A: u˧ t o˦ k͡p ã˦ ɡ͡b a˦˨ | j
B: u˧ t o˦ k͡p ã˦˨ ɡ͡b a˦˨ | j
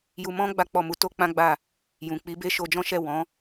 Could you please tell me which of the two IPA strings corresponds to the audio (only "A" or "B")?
A